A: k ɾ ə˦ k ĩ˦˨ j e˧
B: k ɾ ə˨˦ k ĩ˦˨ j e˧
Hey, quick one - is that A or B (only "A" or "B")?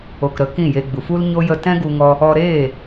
B